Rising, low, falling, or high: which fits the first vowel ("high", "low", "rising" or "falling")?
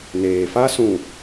low